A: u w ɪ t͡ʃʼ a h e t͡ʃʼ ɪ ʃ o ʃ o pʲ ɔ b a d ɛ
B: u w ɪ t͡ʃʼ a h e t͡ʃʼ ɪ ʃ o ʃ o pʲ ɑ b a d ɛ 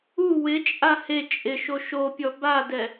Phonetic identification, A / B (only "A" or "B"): A